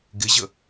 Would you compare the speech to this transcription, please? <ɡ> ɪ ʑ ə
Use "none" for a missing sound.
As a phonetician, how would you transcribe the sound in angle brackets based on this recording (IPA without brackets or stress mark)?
ɡ